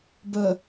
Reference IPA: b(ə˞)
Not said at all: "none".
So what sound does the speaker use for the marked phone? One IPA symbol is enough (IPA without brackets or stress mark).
ə